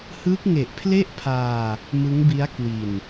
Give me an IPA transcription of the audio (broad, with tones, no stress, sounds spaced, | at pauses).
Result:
h ɯ˦˥ k̚ ŋ e˨˩ ʔ pʰ l e˥˩ ʔ pʰ aː˧ | m ɯ˦˥ ŋ b i˦˥ a̯ k w i˨˩ n